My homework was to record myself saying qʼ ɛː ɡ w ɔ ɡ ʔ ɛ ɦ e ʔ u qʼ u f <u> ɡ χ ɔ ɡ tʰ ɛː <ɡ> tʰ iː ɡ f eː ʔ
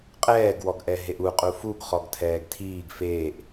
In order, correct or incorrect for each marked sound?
correct, correct

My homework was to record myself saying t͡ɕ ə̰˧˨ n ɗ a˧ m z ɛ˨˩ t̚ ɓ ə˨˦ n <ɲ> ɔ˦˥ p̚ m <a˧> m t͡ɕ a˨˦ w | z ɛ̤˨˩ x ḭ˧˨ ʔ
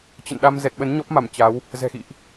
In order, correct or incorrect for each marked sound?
correct, incorrect

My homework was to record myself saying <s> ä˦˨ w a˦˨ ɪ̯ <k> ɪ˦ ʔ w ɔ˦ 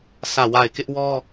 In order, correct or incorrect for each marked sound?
correct, correct

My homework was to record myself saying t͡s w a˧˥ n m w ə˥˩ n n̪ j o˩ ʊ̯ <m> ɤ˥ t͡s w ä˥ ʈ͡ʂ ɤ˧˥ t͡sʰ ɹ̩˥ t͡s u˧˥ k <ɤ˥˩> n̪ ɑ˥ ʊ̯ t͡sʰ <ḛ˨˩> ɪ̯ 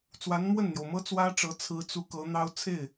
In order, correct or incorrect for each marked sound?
correct, incorrect, incorrect

